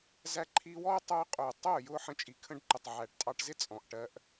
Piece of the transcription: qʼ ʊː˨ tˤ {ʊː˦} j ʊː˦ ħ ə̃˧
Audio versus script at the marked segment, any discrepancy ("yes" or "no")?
yes